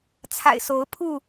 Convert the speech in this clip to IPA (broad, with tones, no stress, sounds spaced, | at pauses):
t͡sʰ a̰˨˩ ɪ̯ s o˨˦ ʊ̯ pʰ u˥˨